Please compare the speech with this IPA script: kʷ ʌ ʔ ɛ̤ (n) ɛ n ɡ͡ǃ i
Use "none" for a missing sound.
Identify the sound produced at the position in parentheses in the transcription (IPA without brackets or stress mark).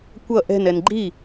n